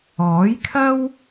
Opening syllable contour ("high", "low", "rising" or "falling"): rising